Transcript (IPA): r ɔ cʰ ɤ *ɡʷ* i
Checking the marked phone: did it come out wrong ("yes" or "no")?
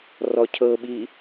yes